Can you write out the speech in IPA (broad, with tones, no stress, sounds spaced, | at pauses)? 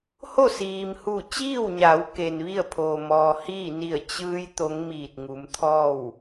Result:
h o˥˨ s iː˩ m h u˧˩ t͡ɕ iː˥˨ w ɲ a˩˧ w k e˩ n ʋ i˥˨ ə̯ pʰ oː˩ m ɔː˩ h iː˥˨ n i˧˩ ə̯ t͡ɕ ɯː˧ j t̪ o˧˥ ŋ m iː˧˩ t̚ ŋ u˩˧ m t̪ʰ ɔː˥˨ w